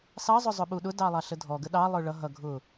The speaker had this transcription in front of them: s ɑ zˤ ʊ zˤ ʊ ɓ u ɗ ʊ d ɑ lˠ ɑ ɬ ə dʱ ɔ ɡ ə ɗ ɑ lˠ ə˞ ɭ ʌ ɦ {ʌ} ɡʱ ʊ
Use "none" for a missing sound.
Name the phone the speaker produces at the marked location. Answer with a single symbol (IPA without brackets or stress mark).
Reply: ʌ